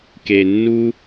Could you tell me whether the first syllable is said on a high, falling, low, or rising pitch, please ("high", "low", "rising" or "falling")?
high